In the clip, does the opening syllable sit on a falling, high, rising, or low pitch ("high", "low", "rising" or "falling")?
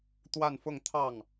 falling